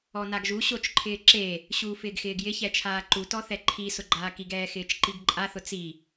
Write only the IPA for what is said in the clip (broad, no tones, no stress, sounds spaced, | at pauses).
ɔ n a ɡ ʒ u ɕ o t͡ʃ ǃʰ ɪː ǁ e | ɕ uː f ɪː ɡ x ɪː ɡ j ɪ ç ɛ t͡ʃʰ aː ǃ u t ɔ θ ɛ ǃʰ i s ʊ ɡ͡ǃ aː k i ɡ ɛː x ɪː t͡ʃ ǃ i ɡ ǃʼ a θ ʊ t͡s i